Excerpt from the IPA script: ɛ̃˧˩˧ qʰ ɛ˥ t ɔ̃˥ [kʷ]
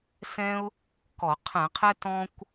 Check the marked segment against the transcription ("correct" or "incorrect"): correct